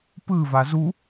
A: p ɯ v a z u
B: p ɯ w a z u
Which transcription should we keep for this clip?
A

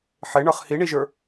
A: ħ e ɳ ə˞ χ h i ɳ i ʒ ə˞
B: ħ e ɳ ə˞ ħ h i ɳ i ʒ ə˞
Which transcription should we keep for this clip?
A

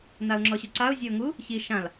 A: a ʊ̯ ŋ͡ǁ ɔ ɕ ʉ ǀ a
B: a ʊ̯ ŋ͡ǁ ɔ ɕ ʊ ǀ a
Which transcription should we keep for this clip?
A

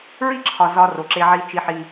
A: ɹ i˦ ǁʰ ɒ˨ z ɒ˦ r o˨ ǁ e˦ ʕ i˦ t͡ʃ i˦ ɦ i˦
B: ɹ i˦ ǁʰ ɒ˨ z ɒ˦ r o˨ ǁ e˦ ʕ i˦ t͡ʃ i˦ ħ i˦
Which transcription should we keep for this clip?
B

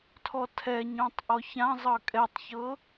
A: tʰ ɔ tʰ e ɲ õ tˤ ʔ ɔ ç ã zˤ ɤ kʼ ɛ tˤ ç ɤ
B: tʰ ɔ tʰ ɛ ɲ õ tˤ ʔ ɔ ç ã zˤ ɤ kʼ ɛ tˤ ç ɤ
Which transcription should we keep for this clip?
B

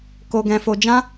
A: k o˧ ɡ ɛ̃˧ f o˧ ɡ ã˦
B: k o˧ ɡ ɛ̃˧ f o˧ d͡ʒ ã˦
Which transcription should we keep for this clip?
B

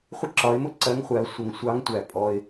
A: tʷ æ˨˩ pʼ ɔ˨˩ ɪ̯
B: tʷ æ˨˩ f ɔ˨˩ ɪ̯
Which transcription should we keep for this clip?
A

